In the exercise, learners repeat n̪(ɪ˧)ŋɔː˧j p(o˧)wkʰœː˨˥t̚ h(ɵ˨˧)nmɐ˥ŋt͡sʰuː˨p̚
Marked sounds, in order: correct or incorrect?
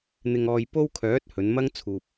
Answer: correct, incorrect, correct

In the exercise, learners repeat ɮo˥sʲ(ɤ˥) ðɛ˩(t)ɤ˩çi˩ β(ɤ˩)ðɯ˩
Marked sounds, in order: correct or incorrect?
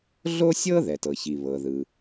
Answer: correct, correct, correct

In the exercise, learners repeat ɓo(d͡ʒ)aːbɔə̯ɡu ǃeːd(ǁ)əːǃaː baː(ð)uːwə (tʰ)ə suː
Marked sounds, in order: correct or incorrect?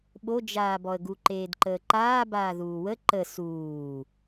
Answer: correct, incorrect, correct, incorrect

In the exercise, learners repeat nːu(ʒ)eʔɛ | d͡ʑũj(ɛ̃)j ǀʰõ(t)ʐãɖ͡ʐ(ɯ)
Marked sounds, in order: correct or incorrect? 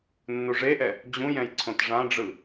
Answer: incorrect, correct, correct, correct

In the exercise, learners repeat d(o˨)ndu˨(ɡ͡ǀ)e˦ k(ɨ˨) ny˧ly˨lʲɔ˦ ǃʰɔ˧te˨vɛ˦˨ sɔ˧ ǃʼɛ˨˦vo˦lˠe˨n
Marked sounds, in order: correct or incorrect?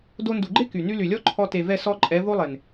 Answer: incorrect, incorrect, incorrect

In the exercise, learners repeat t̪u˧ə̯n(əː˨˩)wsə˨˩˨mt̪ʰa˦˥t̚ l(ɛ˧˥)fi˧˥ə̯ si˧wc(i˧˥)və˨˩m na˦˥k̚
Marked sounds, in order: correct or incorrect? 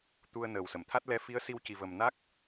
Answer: correct, correct, incorrect

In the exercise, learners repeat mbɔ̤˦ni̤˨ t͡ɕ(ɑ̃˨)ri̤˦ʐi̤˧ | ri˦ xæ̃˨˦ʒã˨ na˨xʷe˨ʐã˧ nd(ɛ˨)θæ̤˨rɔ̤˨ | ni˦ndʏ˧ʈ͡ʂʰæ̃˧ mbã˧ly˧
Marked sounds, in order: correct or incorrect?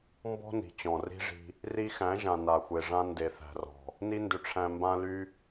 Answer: incorrect, incorrect

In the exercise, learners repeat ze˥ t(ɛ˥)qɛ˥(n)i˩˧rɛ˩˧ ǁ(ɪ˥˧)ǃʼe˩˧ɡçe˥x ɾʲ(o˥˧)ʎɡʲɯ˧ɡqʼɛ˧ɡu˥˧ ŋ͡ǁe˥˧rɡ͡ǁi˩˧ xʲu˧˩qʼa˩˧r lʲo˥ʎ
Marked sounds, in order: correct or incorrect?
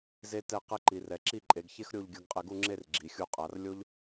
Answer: incorrect, incorrect, incorrect, correct

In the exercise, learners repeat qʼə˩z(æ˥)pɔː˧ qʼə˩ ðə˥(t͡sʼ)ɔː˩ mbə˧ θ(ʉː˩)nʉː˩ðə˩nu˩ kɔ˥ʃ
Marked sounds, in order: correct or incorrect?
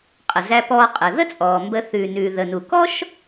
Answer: incorrect, correct, correct

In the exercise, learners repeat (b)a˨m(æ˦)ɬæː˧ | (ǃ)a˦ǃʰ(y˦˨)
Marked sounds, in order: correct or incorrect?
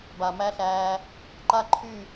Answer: correct, correct, correct, correct

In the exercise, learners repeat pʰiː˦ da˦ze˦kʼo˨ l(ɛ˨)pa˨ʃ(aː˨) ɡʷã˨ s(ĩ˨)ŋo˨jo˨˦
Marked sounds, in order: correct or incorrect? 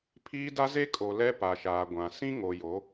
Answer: incorrect, correct, incorrect

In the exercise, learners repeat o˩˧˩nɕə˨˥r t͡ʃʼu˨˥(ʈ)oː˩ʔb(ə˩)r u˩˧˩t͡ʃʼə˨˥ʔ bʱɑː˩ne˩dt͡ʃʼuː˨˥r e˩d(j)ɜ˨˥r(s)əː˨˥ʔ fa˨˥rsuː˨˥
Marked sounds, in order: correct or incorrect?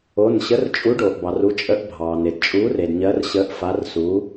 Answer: incorrect, incorrect, incorrect, incorrect

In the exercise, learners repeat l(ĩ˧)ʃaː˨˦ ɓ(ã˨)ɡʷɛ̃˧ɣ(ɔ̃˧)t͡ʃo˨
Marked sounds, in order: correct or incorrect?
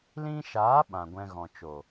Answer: correct, correct, incorrect

